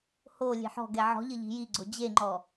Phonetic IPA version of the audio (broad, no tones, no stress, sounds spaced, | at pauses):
h o lʲ e̤ ħ ɔ̤ ɡ ɛ ʕ ɔ̤ ʎ ɘ ʎ i̤ j i ɡ͡ǀ o d͡ʑ e ŋ͡ǃ ɔ